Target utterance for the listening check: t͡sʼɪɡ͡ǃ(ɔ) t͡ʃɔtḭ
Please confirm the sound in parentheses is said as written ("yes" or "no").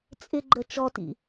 no